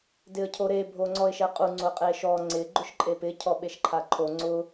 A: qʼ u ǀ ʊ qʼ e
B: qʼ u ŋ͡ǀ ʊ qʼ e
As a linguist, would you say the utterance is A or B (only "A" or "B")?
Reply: B